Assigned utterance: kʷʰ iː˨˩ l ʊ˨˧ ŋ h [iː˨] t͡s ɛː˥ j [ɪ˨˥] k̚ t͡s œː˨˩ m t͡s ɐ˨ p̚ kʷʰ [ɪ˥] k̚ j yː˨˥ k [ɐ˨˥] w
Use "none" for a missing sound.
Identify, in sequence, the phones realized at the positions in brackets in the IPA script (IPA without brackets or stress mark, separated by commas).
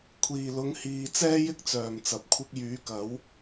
iː˨, ɪ˥, ɪ˥, ɐ˨˥